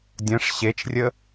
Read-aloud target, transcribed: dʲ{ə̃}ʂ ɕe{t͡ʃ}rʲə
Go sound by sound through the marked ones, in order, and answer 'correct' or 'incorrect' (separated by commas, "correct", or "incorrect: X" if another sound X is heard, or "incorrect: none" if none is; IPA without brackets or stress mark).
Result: correct, correct